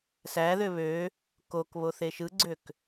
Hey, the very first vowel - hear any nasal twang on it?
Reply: no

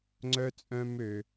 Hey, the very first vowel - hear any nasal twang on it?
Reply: no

